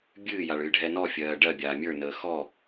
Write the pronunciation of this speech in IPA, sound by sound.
bʲ ɨː j a ɭ ɨː ɖʱ ɛ n ɔ fʲ ɜː ɖ ɜ bʲ aː mʲ ə˞ n əː x ɔ

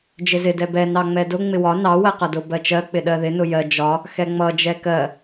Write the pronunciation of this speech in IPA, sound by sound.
d͡ʒ ɪ z ɪ d ɛ b ɛ n ɑ ŋ͡m ɛ d ʊ ŋ͡m ɪ w ɒ n ɑ w ɜ q ʌ d ʊ b ɜ t͡ʃ ɜ k͡p ɪ ɗ ɜ ð ɪ n ʊ j ɜ d͡ʒ ɒ | x ɛ ŋ͡m ʌ d͡ʒ ɛ k ɜ

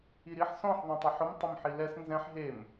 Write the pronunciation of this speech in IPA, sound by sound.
i ɾ i ħ s ɔ̃ ħ ðˤ ɛ̃ tˤ ʊ ħ ʊ m tˤ ʊ m ħ i l ɛ s n z ɛ̃ ħ ɦ e m

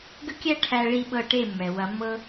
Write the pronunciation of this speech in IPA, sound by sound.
ɡ ə˦ kʲ æ˦ ʈʰ æ˦ ɭ i˦ ɓ ɤ˦˨ ʈ e˦˨ mː ɛ˨ w ɐ˨˦ mː ɤ˦

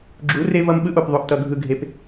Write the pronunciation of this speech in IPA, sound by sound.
ɡ͡ǁ u˨˦ r e˦ v ʌ˦ m ɓ ɯ˦ ʔ o˨ p ðˤ o˨ ʔ t ʌ˨ ɡʱ ɯ˨ ɡʱ e˨ p

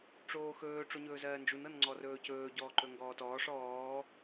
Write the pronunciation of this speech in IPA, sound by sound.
ʈ͡ʂ oː x ɵː ʈ͡ʂ o ɲ ɵː z ɜː n d͡ʒ u n ɤ n ŋ͡ǀ ɔ r ɵː c ɵː ɟ ɔː ǃ ɵ ŋ ɡ ɔː t ɔː ʂ ɔː

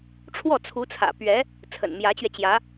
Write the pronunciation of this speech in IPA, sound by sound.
ʈ͡ʂʰ w ɔ˥˩ t͡sʰ u˧˥ t͡sʰ ä̰˨˩ p ɥ ɛ˧˥ | t͡sʰ ə̰˨˩ n m j ä˧˥ t͡ɕ ɥ ɛ˧ t͡ɕ j ä˧˥

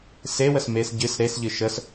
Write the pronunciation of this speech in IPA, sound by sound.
s e w ə s m e s ɟ ɨ s ɾ e s ʎ ɨ ʃ ə s

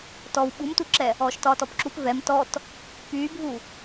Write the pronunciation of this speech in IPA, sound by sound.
t ɔ w ɓ u m t u ǁ ɛ | ɔː ʃ t ɒː t ɔ p ǁ u p v ɛ m t ɔ t | p yː bʱ u

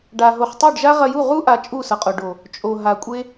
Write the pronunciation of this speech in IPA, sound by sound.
ɖ a˧ ɦ o˧ χ tˤ u˦˨ ɖ ʒ a˦ ʁ ɐ˧ j u˦˨ ʁ u˦ ʔ a˨˦ t͡ʃʼ u˦˨ s ʌ˨ qʼ o˨ ɖ o˨ | t͡ʃʼ o˨ ɦ a˨ kʷʼ e˦

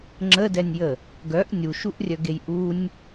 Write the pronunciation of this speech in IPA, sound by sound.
ŋ͡ǁ ə d ɛ nʲ j ə | ɡ œ ʔ nʲ u ʃ u ʔ rʲ œ ɡ e j ʔ u nʲ

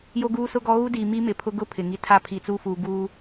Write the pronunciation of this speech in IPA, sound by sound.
j o˦ ɡ uː˦ s ʊ˦ ɡ ɔ˦ ɣ u˦ d iː˨ m i˦ m ɪ˨ pʰ ʊ˦ ɡ ʊ˦ pʰ ɪ˨ ŋ i˦ tʰ a˦˨ pʰ i˨ t͡s u˦ f uː˨ ɡ uː˦

